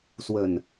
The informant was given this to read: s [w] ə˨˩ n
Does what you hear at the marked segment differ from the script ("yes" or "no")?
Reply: no